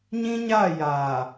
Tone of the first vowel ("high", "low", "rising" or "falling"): high